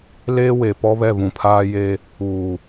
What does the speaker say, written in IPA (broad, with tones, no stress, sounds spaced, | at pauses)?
l eː˦ w e˨ p ɔ˦ β ɛ˦˨ β ũ˨ pʰ aː˦ j e˦ | uː˨